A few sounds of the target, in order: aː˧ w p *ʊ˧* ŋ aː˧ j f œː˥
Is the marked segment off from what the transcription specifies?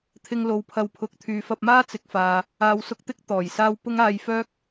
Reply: yes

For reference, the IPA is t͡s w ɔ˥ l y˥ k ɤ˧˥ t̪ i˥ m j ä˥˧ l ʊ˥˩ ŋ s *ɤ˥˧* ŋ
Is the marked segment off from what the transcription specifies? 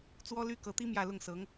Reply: yes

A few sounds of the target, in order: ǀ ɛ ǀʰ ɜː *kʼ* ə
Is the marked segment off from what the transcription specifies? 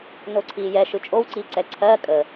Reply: no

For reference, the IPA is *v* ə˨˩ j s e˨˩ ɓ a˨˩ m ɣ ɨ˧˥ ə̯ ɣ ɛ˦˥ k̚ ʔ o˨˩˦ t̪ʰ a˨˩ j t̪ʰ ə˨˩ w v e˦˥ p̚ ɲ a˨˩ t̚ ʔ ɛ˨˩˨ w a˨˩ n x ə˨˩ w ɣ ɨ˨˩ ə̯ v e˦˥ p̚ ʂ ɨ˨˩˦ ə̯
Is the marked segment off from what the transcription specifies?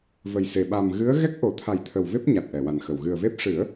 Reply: no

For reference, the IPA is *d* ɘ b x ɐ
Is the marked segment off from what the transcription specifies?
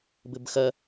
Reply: yes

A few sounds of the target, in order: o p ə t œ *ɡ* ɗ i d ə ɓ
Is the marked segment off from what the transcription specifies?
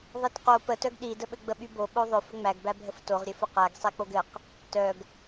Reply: no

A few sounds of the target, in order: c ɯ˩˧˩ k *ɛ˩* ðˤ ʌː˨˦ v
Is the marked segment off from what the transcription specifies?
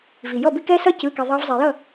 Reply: no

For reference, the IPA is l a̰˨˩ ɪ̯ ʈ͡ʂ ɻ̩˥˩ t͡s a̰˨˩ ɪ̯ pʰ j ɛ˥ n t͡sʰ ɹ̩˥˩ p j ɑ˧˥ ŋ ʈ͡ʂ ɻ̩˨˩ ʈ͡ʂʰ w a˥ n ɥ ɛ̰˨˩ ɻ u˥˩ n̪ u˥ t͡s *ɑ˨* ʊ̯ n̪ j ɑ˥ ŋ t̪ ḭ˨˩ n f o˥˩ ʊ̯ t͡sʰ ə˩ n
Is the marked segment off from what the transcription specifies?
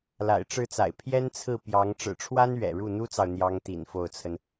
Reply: no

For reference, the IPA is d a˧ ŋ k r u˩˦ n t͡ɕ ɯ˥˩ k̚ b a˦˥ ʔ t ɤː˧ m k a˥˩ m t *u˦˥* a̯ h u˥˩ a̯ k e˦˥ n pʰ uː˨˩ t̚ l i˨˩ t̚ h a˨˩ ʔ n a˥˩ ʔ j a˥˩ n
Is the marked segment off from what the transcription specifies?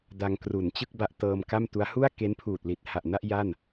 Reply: no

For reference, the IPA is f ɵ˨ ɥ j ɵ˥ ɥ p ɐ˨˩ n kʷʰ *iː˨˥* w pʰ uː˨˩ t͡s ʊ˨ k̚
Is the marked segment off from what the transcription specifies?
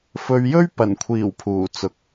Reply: yes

